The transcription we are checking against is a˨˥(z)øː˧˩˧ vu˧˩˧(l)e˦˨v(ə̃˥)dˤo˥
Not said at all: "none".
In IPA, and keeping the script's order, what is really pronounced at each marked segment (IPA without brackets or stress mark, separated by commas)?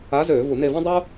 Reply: z, n, ã˥